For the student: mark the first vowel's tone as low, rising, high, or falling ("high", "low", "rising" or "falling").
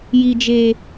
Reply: low